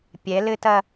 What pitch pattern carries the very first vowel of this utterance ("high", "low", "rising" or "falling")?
rising